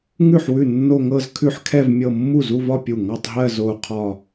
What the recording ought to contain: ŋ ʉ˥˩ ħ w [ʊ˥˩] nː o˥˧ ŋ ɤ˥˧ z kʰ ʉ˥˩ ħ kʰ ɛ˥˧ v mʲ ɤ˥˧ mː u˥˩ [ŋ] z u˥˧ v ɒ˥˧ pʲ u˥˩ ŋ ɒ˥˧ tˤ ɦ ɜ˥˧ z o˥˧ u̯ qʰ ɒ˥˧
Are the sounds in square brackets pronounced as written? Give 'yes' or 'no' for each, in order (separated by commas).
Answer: no, no